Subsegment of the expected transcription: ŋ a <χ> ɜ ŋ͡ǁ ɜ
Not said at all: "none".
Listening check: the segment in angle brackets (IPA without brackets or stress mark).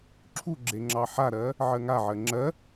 ʕ